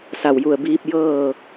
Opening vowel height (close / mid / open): open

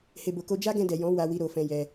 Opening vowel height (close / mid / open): mid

